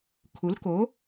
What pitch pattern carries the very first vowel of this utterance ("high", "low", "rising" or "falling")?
rising